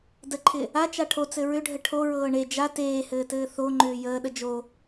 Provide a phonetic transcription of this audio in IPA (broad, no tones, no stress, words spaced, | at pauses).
dəǃʰɪ | at͡ʃa ʈʰot͡sɘ ɹʏɖʱə ʈʰoɹɤː ɳe d͡ʒa teːhɘːtɘː θoŋ͡ǃʏː jəːɗə d͡ʒo